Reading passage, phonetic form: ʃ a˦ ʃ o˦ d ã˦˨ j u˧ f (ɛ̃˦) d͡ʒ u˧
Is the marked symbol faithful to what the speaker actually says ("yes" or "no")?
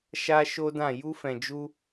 no